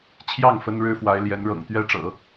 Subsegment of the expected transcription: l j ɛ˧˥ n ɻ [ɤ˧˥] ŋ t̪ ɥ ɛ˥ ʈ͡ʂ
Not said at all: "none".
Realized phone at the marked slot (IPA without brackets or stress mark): ɤ̰˨˩